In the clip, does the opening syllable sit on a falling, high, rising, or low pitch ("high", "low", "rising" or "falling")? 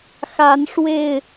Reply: rising